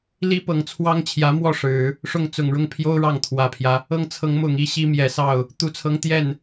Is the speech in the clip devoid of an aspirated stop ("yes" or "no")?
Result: no